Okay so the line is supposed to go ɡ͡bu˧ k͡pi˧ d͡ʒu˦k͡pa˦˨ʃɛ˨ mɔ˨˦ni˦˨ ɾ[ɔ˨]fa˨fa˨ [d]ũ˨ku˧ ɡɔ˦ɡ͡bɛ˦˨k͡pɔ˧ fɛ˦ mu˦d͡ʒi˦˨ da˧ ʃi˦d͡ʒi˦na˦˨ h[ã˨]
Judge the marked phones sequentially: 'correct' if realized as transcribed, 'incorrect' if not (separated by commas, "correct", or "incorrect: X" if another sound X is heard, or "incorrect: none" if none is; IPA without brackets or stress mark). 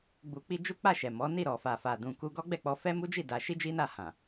correct, correct, correct